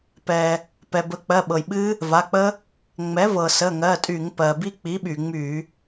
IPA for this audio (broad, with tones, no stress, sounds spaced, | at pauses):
p ɛ˩ | p ɛ˩ b ə˩˥ k͡p ɜ˩˧˩ ɓ ɤ˩ j ɓ ɨ˦˥ | v a˩˧˩ k͡p ə˦˥ | ŋ͡m ɛ˩˥ v ɤ˩ s ə˩˧˩ ŋ ɜ˩˧˩ tʼ y˧˩˧ ŋ p ɜ˩ b i˦˥ k͡p i˩˥ ɓ y˩ ŋ͡m y˧˩˧